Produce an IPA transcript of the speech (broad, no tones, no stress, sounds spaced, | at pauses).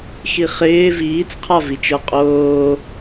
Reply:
x i χ ɪː v iː t͡s qʰ a v i t͡ʃ ə˞ qʼ oː